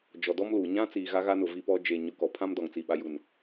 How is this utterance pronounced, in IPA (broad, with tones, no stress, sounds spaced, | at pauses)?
d͡ʒ ɔ˨ d ɔ˦ m l uː˨ ɲ ã˦ t͡s iː˨ ɣ a˦ ɣ a˦ n ʊ˨ v i˦ p ɔ˦ d͡ʒ e˨ ɲ ʊ˨ k ɔ˨ pʰ ã˦ m d ɔ˨ ŋ t͡s i˨ ɓ a˨ j u˨ n